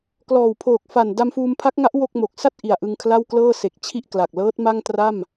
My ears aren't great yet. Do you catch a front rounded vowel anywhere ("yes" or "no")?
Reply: no